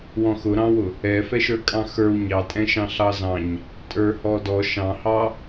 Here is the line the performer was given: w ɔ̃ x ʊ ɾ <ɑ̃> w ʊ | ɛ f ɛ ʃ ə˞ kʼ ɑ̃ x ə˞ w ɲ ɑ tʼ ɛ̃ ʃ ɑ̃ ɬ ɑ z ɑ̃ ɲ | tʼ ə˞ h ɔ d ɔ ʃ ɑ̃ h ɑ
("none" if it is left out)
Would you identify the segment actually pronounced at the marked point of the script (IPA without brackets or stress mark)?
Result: ɑ̃